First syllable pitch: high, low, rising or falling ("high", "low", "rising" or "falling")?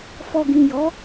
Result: low